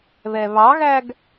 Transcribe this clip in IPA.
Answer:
β ɛ β ɑ ɣ æ ɡ

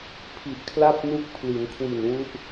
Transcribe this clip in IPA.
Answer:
pʰ i˨˩ ʔ kʰ l a˥˩ p̚ n u˦˥ k̚ pʰ l i˩˦ n kʰ w i˨˩ n w u˦˥ ʔ

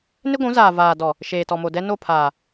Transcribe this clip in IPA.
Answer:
n ɪ˦ ɡʷ ũ˨˦ z aː˨ v aː˨ d ɔ˨ | ʃ eː˨ t ɔ˨ m o˨ d ɛ˦ n o˦˨ pʰ aː˨

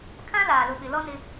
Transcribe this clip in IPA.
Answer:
kʰ ã˦ l aː˨ l ʊ˨ ɓ ɪ˨ l ɔ˦ n ɪ˦

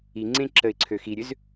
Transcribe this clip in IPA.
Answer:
i ŋ͡ǀ ẽ ǁ ə ɪ̯ ǀʰ ø x i ɾʲ ø z

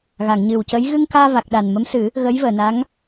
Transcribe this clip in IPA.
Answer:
ɣ a˨˩˨ ŋ ɲ ɨ˨˩ w c ə˧˥ j ɣ ɨ˧ ŋ k aː˧ v a˨˩ k̚ ɗ a˨˩ n m ə˧˥ m s ɨ˨˩˦ | ɣ ə˧˥ j v əː˨˩˨ n a˧˥ ŋ

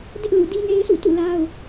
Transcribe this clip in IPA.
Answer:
d ɪ˦ ʔ l u˨ d i˦ n e˦ ɪ̯ s ṵ˦˨ t ṵ˦˨ l a˦ ʊ̯

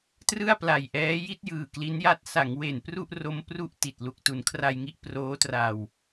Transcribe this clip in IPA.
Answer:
t r ɯ˥˩ a̯ p l a˨˩ j ʔ ɛː˦˥ j i˥˩ t̚ j ɯː˨˩ k l i˦˥ n j a˦˥ t̚ s a˩˦ ŋ w e˨˩ n p r u˥˩ ʔ r o˦˥ m p r u˥˩ ʔ t i˨˩ t̚ l u˨˩ k̚ t u˩˦ n kʰ r a˧ j ŋ i˦˥ ʔ p r oː˦˥ t r a˨˩ w

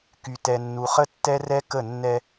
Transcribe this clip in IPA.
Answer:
k y˨ t ɛ˨ nː u˨ χ ə˦ tː ɛ˦ r ɛ˦ k ə˦˨ nː ɛ˦

